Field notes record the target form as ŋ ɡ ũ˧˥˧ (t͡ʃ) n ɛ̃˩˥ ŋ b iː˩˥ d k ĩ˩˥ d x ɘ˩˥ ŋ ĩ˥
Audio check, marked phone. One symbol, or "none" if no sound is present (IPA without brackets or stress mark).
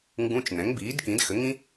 t͡ʃ